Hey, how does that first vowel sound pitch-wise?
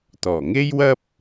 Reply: low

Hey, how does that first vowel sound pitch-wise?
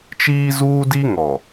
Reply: high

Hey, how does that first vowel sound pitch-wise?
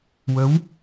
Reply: rising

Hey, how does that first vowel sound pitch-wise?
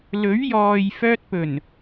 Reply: rising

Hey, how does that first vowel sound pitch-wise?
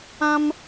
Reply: high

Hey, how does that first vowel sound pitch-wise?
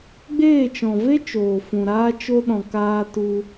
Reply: falling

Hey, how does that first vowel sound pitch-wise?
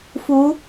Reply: rising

